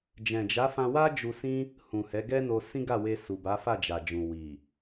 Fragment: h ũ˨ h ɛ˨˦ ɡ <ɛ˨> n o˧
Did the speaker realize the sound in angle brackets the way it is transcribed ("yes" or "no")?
no